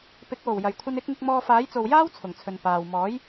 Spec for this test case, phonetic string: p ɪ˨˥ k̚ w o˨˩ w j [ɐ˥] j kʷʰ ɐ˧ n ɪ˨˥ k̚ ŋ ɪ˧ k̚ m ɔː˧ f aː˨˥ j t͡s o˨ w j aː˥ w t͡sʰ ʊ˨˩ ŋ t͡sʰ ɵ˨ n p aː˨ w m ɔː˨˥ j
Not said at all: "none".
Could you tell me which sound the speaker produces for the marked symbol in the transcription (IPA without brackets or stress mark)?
ɐ˨˩